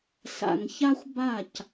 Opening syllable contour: low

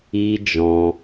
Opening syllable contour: high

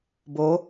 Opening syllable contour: rising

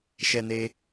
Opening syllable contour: high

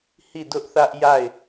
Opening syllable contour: falling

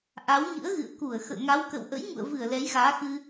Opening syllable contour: rising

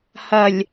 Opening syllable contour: low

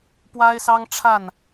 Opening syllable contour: high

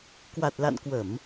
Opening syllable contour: low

